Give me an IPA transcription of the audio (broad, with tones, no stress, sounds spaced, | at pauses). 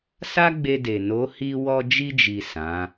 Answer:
s a˦ ɡ͡b e˧ d e˨ n o˨˦ h i˧ w ɔ˧ d͡ʒ i˧ d͡ʒ i˨ s ã˨˦